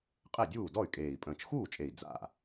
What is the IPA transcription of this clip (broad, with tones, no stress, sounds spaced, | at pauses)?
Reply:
qʼ e˥˩ dʲ uː˥˩ d ɔ˥˩ y̯ kʼ eː˨˩ i̯ pʼ ə̃ː˨˩ t͡ʃ x uː˥˩ t͡ʃʼ e˨˩ i̯ d͡z a̰˥˩